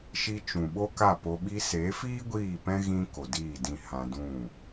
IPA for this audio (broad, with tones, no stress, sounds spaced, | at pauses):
ʃ i˧ t͡ʃ ũ˨ ɓ o˦ k a˦˨ p o˧ ɓ i˧ s e˨˦ f iː˦ ɡʷ iː˦˨ p ɛ̃˦ ɣ ĩ˦ k o˨ d iː˦˨ d ĩ˦˨ h ã˧ d ũ˦˨